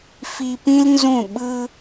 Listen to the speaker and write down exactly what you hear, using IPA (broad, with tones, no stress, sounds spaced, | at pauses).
f i˧ p ĩ˦ l n z ũ˦˨ ɓ ɯ˧